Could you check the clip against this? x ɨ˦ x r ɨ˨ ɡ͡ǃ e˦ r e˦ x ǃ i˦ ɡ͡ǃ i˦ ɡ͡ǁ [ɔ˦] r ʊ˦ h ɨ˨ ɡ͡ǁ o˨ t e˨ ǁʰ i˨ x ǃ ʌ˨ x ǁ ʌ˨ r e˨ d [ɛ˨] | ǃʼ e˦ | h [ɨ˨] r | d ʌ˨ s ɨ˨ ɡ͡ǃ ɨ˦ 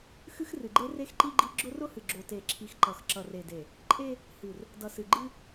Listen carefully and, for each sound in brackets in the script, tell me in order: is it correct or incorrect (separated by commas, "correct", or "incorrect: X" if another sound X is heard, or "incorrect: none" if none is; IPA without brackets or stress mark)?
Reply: incorrect: ʊ˦, incorrect: e˨, correct